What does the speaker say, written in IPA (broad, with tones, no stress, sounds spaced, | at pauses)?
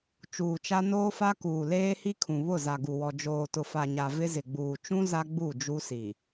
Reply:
t͡ʃ uː˨ t͡ʃ a˦ n oː˦ f a˦ k uː˨ l eː˦ h i˦ kʰ ũ˨ β ʊ˦˨ z a˨ ɡ u˨ w ɔ˨ d͡ʒ oː˨ t ʊ˨ f a˨ ɲ a˨ v ɪ˦ z ɪ˨ ɡ͡b uː˨ t͡ʃ ũ˦ z a˦ ɡ͡b u˦˨ d͡ʒ u˦ s i˨